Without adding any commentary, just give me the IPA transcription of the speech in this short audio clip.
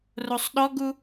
r o sˤ ɗ ɔ ɡ u

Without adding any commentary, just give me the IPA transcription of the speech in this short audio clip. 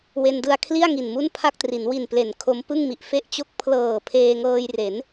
w e˧ n d ɯ˧ a̯ kʰ l i˥˩ a̯ ŋ i˨˩ n m u˥˩ n pʰ a˥˩ k̚ t r i˩˦ n w i˨˩ n p l e˩˦ n kʰ o˦˥ m p ɯ˥˩ ŋ m i˨˩ ʔ f e˥˩ ʔ t͡ɕ o˥˩ k̚ pʰ l ɤː˨˩ pʰ eː˧ ŋ ɤː˧ j r e˩˦ n

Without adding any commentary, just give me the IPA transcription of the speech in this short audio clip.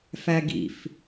f æ ɡ ḭ f

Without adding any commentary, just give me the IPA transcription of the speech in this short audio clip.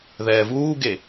ð ɛː v uː ɡ e

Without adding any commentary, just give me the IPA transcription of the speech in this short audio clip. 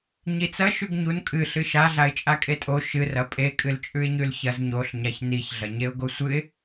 ɲ i t͡s ɐ ʃ ʉ ɡ ɲ u n kʼ ɨ ɬ ɨ ʃ a ɮ a ɪ̯ t͡ʃʼ a kʼ e tʼ o ʃ ɨ r ɐ pʼ e kʼ ɨ l t͡ʃʼ ʉ ɪ̯ ɲ ʉ l ç ɐ z ɲ o ɬ ɲ a ç n i ç ɮ ɐ ɲ e ʊ̯ ɡ o sʷ ɨ ɪ̯

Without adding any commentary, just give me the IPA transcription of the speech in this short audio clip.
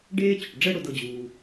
ɖ eː˥ t͡ɕ ʊ˩ ʈ ɖ͡ʐ ɛ˥ ɽ ʊ˨ d ɤ˨ d͡ʑ uː˩

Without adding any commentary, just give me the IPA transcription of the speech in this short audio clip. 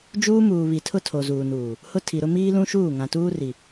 d͡ʒ uː˦ m uː˨ β i˨ tʰ ʊ˦ tʰ o˨ z uː˨ n uː˨ | h ʊ˦ tʰ i˨ ɾ ʊ˦ m iː˦ l ũ˦ ʃ uː˦˨ ŋ ã˨ t uː˦ r i˨

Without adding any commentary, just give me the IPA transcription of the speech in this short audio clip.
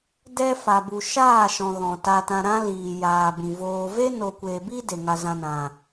d ɛ˦ f a˧ b u˧ ʃ aː˦˨ ʃ ɔ̃˨ ɣ ɔ̃˨ t a˧ t ã˧ ɾ ã˦ l iː˨ j aː˨ b ĩ˨ v oː˧ v e˦ n o˨ kʷ eː˨ b i˦ d e˨ ŋ a˧ z ã˧ n ã˨

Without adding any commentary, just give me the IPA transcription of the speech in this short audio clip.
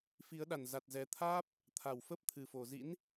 f i˨˦ ə̯ ɗ a˨˩ n z a˨˩ t̚ z ɛ˨˩ t̪ʰ aː˦˥ p̚ | t̪ʰ a˧˩ w f ə˦˥ p̚ t̪ʰ ɨ˧˩ f o˧˩ z ḭ˧˥ n

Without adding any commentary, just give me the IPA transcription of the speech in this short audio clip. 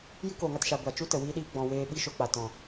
j ɨ˦ k oː˨ ŋ a˧ t ʃ a˧ ɡʷ a˨ t͡ʃ u˦ t ə˨ w iː˦ ɗ iː˦ ɡ͡b ɔ̃˧ w eː˦ ɓ i˦ ʃ o˧ k͡p a˨ t ɔ̃˨

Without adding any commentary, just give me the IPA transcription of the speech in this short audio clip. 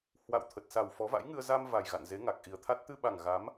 h w a̰˧˨ w t̪ʰ ə˨˩ t̚ s a˨˩ w f ɔ˨˦ v a̰˧˥ j ŋ ɨ˧ ə̯ z a˧ m v a˨˩ j ɣ a̰˧˨ n z e˨˦ ŋ a˨˩ k̚ ʔ i˨˩ ə̯ t̪ʰ a˦˥ t̚ t̪ ɨ˧ ɓ a˨˩ ŋ ɣ a˨˦ m

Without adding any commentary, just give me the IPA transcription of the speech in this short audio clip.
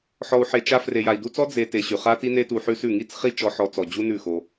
ħ ɔ˧ u̯ ħ e˧ t͡ʃ a˦ f r e˨ j a˨ i̯ d u˧ t͡s ɔ˦ d͡z e˧ t e˧ ɕ ʉ˨ χ a˦ t i˦ n e˦ t u˧ ħ ʉ˦ s ʉ˦˨ ŋ i˦ t͡s χ i˦ t͡ʃ ɔ˦ ħ ɔ˦ t͡s ɔ˨ d͡ʑ u˦ n ʉ˦˨ x o˧

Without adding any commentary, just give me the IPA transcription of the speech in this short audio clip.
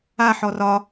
a ħ ɔ r ɒ

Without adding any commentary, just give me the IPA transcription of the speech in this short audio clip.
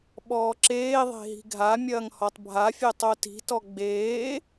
ɓ ɔː ǁ eː ðˤ e̤ ɦ i̤ ɡʱ a mʲ ɐː ŋ h ɔ tˤ bʱ a fʲ e tˤ o t i̤ t ɔ ɡ͡b eː

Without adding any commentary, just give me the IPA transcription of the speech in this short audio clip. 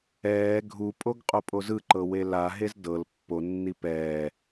ɛː ɡʱ u pʼ o ɡ qʼ o pʼ o z ɯ ǃ ɤ w e l a ɦ e z d ɤ l pː o nː i p ɛː

